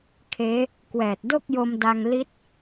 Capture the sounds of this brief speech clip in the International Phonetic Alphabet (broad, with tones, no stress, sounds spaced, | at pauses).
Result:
kʰ eː˦˥ | k w ɛː˨˩ t̚ d o˥˩ k̚ j o˧ m d a˧ ŋ l i˦˥ t̚